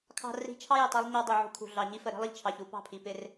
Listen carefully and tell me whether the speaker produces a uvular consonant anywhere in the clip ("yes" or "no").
no